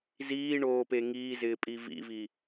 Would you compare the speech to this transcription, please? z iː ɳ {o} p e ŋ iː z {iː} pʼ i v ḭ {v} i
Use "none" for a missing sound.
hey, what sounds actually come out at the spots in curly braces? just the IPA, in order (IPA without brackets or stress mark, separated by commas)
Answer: oː, ɪː, v